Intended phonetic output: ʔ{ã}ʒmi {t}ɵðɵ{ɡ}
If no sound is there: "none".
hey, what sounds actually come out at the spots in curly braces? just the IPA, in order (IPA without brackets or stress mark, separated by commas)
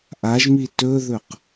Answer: a, t, q